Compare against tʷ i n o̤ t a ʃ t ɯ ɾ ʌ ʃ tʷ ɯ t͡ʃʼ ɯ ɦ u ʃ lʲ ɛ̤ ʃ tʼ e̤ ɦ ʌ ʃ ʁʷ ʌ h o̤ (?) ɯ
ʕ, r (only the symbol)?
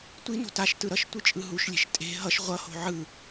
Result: ʕ